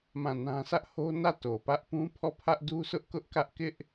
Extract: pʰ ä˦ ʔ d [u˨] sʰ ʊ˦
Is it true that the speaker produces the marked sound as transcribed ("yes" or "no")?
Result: no